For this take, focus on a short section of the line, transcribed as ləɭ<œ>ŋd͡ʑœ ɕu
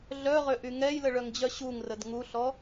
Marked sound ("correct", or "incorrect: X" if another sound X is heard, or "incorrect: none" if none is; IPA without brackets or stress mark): correct